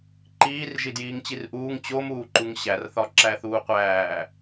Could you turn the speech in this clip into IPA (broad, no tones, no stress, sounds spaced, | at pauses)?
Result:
ǃ iː r ʒ i d j iː ŋ t͡ɕ i r ʔ uː ŋ t͡ɕ o m uː ǃ u ŋ ɕ æ r θ ɒ ǁ æ θ uː qʷ æː